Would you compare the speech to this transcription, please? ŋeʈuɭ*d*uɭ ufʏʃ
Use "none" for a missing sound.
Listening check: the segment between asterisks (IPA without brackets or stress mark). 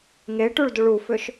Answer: d